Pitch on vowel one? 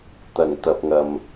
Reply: low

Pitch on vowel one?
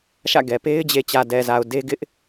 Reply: falling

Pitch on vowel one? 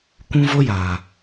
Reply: high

